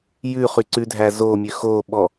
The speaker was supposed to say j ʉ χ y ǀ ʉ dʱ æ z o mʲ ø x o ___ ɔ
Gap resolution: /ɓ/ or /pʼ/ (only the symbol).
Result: ɓ